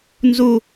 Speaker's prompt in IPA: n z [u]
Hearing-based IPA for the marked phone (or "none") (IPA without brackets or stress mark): u